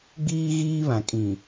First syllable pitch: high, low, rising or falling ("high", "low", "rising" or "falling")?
high